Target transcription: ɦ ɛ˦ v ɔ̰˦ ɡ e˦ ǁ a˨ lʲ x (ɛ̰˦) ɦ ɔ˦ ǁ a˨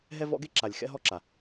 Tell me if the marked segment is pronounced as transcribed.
yes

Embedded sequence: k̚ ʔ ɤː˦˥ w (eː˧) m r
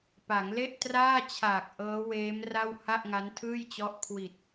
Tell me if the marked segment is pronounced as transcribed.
no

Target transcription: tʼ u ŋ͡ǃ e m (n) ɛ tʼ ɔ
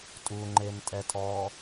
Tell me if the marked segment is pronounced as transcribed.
no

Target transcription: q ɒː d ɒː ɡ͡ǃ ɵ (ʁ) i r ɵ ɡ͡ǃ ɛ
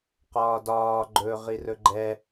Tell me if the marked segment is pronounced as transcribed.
yes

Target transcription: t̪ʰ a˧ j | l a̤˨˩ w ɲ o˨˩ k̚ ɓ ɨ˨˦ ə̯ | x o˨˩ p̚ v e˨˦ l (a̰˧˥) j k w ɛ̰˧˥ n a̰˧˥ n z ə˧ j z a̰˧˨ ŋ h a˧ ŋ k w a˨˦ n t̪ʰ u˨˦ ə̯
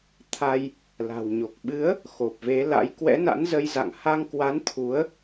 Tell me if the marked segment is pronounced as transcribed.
yes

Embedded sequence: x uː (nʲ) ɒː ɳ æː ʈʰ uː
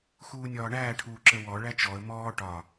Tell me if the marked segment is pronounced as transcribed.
yes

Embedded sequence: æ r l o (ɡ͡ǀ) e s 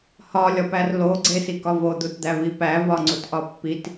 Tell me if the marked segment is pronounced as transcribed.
yes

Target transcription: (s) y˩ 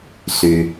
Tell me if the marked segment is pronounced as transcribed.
yes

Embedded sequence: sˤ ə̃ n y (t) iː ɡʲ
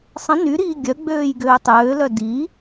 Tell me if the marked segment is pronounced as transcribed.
no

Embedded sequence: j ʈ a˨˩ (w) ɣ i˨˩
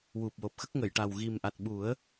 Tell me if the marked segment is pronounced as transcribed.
yes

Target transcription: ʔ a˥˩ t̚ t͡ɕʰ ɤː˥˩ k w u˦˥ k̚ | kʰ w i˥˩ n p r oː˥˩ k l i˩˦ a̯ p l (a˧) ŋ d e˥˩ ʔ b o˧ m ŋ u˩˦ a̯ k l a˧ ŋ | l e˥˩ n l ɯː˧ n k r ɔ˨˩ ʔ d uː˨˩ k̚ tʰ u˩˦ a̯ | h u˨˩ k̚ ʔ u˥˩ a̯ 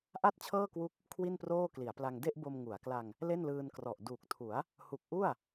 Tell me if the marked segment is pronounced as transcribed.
yes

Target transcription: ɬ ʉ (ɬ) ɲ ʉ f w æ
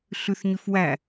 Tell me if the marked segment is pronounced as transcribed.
no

